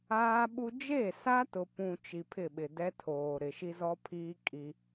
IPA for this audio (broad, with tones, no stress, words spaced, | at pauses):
aː˦ɓu˦ d͡ʒe˦˨sa˦tʊ˨ pũ˨ t͡ʃi˨pʰɪ˦˨ɓɪ˨ dɛ˦ tʰoː˨ ɾɪ˨ ʃi˦zɔ˦pʰiː˦ kʼi˦